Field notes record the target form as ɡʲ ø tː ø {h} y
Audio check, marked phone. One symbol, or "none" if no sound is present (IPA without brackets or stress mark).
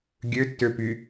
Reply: p